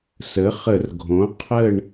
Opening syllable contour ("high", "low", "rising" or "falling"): rising